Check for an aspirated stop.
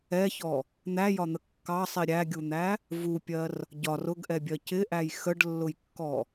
absent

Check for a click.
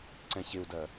present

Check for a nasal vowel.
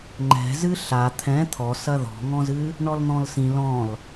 present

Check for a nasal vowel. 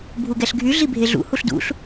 absent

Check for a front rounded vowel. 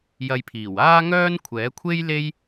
present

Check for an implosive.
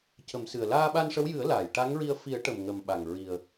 present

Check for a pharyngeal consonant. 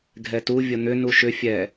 absent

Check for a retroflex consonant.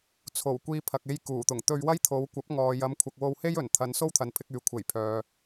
absent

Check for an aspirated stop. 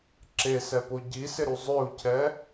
present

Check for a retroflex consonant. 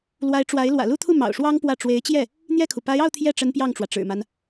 present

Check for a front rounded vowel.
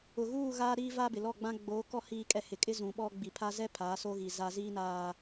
absent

